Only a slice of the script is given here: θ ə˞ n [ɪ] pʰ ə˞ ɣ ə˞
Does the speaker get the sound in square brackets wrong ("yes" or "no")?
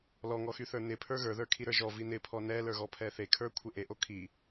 no